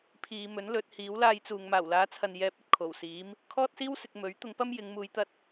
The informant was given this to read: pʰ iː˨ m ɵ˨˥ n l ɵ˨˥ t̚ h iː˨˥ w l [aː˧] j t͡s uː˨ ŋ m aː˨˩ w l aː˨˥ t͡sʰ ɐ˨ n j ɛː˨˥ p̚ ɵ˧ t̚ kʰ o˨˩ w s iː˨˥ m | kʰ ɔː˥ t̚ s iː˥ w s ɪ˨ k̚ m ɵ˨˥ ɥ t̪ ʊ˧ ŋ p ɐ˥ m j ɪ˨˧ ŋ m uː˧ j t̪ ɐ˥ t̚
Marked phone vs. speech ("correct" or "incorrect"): correct